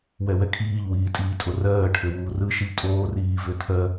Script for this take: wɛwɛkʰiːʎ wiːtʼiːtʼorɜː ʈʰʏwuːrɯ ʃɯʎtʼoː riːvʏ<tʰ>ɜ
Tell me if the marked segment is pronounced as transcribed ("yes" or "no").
yes